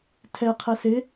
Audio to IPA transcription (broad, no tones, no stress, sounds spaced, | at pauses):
tʰ ɛ qʰ ɛ s ɪ